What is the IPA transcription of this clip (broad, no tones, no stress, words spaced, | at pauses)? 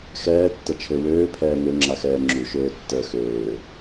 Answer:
xɛːtːət͡ʃʰø wøːpʰɛː ŋøŋ͡ǁaxɛː ŋ͡ǁuʃøːtːəː xøː